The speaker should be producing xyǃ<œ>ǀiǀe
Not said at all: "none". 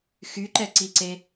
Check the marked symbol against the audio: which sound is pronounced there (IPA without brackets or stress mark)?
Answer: ɛ